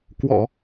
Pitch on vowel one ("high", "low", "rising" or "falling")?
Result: low